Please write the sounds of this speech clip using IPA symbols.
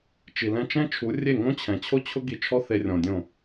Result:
t͡ʃ i˨ l ɛ̃˦ t͡ʃ ɛ̃˦ t͡ʃʰ u˨˦ rʲ e˦˨ ŋ õ˦ t͡ɕʰ ɛ̃˨ t͡ɕʰ o˦ t͡ɕʰ ʊ˦ ɡ i˧ t͡ʃʰ ɔ˦ θ e˧ rʲ ɔ̃˨ dʲ õ˦˨

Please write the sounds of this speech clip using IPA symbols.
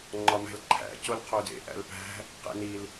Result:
ŋ͡ǃ ɒ m æ̤ l ǃʰ æ̰ c o l qʰ o d ḛ ʔ æ̰ l p æ̤ | q ḛ n i l

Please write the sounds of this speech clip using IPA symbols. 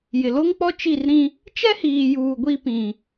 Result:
j ɪ˨ l o˦ ŋ k͡p ɔ˦ t͡ʃ i˦˨ r ɾ ĩ˦ | t͡ʃ ɛ˦ h iː˨ j uː˨ ɡʷ i˦ p ĩ˨

